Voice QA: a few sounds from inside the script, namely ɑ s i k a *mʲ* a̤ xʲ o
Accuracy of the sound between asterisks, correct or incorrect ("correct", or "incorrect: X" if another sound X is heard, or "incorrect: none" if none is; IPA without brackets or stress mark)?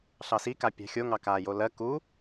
incorrect: pʲ